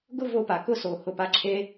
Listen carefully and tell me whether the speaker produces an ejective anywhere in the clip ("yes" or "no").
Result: no